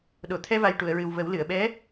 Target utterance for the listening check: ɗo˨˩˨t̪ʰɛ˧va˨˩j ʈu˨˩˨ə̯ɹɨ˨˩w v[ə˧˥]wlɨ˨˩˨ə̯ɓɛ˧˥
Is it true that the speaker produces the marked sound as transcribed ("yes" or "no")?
no